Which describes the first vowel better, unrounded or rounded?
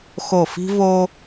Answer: rounded